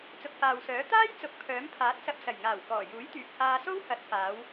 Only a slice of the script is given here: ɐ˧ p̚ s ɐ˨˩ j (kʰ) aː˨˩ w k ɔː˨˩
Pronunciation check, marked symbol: incorrect: ŋ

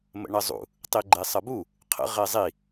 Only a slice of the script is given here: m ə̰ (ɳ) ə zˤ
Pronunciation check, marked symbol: correct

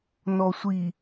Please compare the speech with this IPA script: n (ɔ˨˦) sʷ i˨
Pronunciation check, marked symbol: incorrect: ɔ˨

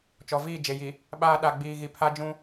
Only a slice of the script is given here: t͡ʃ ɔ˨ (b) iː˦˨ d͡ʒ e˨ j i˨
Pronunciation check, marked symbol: incorrect: v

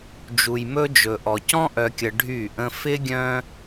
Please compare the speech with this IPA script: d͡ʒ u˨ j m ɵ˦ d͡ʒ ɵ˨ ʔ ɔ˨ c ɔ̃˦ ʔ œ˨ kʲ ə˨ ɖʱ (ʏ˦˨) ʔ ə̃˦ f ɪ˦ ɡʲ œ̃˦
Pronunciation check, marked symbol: incorrect: y˦˨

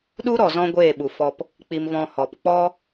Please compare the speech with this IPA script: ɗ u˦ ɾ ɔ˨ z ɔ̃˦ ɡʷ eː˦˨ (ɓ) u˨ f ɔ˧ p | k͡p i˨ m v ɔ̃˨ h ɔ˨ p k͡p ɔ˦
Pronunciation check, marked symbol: correct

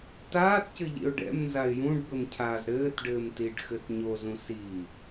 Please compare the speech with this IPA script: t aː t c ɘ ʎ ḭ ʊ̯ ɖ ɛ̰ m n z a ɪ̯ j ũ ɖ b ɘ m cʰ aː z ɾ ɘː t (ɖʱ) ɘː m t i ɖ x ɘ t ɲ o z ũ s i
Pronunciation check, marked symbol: incorrect: ɖ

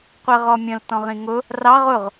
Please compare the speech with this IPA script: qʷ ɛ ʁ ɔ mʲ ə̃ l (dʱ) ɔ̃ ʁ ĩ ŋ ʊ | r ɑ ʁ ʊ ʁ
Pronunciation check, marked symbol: incorrect: t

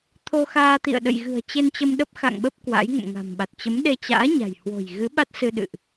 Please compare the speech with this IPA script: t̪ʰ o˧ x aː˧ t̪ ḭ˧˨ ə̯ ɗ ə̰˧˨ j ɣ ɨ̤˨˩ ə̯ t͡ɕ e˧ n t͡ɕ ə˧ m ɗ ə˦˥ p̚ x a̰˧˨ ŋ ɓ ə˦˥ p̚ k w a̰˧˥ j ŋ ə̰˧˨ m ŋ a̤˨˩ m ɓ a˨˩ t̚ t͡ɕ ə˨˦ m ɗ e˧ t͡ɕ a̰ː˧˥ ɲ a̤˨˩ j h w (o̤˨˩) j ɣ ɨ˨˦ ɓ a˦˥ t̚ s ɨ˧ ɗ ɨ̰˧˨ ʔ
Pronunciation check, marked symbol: correct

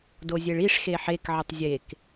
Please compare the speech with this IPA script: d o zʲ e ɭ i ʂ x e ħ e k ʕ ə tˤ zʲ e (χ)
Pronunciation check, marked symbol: incorrect: k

